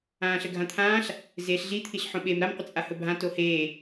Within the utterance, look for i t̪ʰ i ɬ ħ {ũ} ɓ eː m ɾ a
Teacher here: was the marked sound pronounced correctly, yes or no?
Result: no